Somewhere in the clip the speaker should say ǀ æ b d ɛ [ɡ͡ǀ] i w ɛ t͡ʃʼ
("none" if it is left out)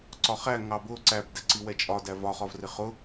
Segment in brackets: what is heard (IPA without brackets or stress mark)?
ǀ